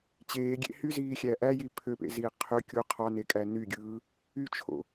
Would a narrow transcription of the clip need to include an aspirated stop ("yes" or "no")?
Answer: yes